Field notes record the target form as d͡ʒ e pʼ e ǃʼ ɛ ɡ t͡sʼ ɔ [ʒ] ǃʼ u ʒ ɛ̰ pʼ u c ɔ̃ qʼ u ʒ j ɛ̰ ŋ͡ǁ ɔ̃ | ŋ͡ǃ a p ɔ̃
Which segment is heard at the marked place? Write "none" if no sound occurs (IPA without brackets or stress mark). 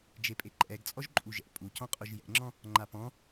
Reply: ʒ